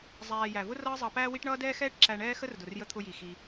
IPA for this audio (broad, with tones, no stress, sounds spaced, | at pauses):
zˤ æː˧ j æ˨ v ʊ˦ r ʌː˦ zˤ ɑ˧ p æː˦ w i˦ ʈ ɳ ʌː˦ d ɛː˦ x ɛː˦ ʈ ǁ æ˧ ɳ ɛː˦ x ə˦ r d ʊ˨ r j ə˧ t̪ʰ ʊ˧ j i˨ x i˦